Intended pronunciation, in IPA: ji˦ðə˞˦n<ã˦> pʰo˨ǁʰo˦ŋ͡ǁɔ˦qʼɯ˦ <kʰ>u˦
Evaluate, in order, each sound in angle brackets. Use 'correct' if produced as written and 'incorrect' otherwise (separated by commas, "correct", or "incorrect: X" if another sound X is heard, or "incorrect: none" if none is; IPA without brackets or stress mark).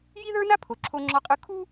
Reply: incorrect: a˦, correct